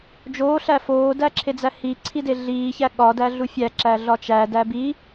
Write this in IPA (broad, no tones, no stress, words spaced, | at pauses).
d͡ʒoːɬæ foːdæǁʰed͡zæ hiǀʰide ɮiːçæ ɠɒdæɮu fʲæǁæɮɒ t͡ʃædæ bi